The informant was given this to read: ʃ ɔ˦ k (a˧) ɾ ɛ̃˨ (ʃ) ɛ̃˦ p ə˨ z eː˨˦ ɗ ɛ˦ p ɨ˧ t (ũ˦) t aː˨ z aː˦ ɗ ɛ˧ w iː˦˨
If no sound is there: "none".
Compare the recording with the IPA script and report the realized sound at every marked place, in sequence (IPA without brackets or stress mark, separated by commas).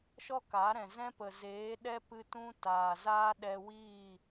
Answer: a˨˦, z, ũ˦